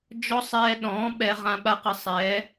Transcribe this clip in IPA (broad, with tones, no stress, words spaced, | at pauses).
d͡ʒɔ˦ sˤɛː˧ɗɔ̃ː˨˦ ɓɛ˧ ʁã˧ ɓa˦qə˧sˤɛː˨˦